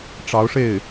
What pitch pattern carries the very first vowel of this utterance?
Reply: rising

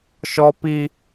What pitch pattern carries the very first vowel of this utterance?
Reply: high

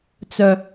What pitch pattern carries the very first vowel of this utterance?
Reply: low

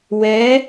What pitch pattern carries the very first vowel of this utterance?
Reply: rising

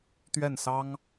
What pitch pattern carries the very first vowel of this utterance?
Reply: falling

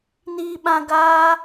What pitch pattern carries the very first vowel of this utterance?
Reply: low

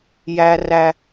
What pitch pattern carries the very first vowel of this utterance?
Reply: high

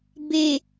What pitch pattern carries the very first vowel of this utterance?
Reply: low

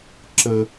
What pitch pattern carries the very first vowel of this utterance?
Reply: high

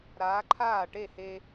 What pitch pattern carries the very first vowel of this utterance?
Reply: rising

